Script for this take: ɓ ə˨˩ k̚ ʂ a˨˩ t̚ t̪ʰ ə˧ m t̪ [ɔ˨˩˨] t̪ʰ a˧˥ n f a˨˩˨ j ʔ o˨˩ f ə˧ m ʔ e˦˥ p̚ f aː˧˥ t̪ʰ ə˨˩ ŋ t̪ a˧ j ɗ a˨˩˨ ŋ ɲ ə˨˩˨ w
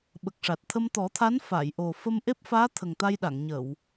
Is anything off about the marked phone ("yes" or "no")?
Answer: yes